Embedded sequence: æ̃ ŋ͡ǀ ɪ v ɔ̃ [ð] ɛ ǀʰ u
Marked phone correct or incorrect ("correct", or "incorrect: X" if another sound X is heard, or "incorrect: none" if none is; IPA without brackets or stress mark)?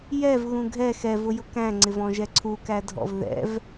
incorrect: ʒ